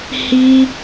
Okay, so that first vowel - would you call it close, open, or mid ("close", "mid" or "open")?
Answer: close